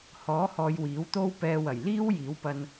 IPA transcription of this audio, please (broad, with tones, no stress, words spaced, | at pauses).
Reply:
hɔː˨˥hɔː˨j wiː˨˥wt̪o˥wpɛː˧ wɐ˨˩jliː˥wjiː˨˥wpɐ˧n